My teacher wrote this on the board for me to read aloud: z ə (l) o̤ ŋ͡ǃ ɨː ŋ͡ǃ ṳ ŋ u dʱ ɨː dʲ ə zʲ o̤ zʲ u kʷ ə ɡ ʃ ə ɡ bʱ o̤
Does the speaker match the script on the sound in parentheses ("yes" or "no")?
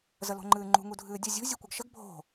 yes